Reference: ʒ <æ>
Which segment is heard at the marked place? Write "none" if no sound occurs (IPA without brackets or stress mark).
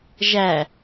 æ